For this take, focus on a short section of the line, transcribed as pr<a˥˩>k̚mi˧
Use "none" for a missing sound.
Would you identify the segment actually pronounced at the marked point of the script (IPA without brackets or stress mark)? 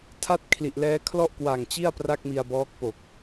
a˥˩